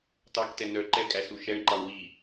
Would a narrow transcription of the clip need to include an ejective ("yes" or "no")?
yes